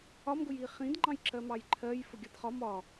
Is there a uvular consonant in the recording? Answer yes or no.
yes